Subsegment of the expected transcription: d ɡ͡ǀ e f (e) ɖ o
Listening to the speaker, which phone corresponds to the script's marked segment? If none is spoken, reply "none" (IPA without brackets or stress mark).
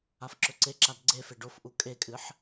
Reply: e